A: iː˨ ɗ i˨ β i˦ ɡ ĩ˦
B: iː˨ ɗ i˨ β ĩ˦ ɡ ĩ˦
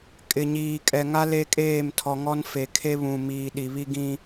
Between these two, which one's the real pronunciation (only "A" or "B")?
A